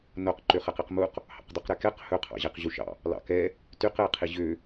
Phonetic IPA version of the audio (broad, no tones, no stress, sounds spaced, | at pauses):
n o q ǃ ø χ ɛ q i q m u q | h ɑ̰ q dˤ y q ɾ ɛ k ɛ q h ɵ qʰ ɑ̰ ʑ ɛ q ʑ u ʃ ɑ̰ | l ɑ̰ k ɛ | t y q ɛ qʰ i ʑ ø